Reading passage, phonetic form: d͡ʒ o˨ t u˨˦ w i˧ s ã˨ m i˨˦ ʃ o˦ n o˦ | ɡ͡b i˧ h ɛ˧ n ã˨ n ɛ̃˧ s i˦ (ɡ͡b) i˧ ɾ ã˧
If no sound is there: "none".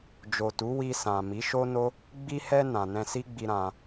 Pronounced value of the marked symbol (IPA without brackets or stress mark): ɡ͡b